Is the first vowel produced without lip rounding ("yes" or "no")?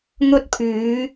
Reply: no